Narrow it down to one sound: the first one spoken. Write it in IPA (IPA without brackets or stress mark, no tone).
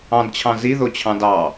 ɑ̃